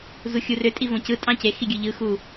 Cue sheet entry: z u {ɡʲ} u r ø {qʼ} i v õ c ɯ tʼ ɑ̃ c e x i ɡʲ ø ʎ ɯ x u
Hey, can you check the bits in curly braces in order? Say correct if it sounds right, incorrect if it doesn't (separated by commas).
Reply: incorrect, incorrect